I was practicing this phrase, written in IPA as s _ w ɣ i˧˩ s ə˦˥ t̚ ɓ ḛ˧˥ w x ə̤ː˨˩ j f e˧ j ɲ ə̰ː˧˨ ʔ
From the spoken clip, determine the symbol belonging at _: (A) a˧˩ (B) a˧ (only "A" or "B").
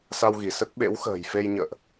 B